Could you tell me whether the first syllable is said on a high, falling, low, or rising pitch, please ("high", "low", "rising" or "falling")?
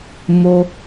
high